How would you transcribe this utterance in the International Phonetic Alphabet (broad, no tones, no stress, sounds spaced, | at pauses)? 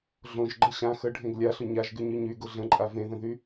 ɮ õ ʒ ɡ͡ǃ ə ɕ ã x ə ɖʱ ẽ ɡ lʲ a ɬ ʊ ɲ a ʒ ɡ y ɲ y ɲ y ɡ ʊ ɮ ə̃ ǃʼ a v ẽ ð ə̃ ð y